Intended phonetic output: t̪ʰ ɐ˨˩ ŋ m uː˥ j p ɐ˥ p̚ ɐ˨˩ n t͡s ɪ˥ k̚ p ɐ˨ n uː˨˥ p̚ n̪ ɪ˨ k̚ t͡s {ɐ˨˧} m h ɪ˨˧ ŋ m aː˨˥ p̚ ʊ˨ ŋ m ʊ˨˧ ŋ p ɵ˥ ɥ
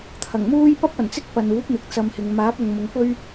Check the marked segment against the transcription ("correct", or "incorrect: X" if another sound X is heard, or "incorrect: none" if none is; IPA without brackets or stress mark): incorrect: ɐ˧